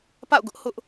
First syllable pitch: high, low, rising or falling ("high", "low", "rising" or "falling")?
falling